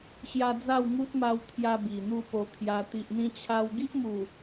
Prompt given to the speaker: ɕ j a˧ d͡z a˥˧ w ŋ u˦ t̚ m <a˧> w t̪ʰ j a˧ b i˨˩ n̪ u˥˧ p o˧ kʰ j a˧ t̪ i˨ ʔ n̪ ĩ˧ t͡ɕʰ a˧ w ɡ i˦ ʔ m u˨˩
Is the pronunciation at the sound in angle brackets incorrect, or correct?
correct